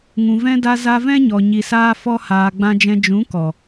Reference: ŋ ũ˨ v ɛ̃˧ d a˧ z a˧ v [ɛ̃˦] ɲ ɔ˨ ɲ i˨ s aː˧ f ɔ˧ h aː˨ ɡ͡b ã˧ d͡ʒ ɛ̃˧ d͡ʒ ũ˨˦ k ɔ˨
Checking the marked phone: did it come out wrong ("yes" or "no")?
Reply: no